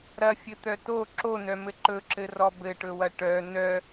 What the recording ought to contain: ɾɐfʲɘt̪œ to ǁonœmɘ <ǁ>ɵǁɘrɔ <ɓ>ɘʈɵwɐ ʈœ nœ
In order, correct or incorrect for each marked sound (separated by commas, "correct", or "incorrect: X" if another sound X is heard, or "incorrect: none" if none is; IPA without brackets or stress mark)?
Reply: incorrect: ǃ, incorrect: b